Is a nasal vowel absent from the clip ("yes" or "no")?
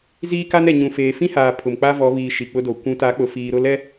no